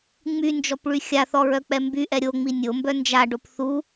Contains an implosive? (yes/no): no